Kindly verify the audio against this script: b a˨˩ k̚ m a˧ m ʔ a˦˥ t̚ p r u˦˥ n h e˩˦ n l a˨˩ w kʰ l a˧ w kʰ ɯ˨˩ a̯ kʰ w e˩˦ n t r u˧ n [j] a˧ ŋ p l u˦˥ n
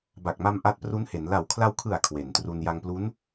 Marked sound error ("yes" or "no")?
no